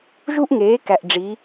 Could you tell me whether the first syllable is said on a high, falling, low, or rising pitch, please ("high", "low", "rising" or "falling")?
high